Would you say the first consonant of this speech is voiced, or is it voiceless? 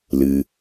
voiced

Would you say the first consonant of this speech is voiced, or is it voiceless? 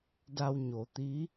voiced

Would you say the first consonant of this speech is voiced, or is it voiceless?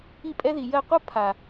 voiceless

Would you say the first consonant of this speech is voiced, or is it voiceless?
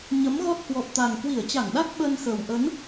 voiced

